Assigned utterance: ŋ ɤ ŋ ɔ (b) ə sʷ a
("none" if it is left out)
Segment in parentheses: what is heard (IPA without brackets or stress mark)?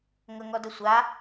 d